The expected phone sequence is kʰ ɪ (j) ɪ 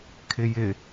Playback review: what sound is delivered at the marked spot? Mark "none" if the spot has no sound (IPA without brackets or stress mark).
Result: j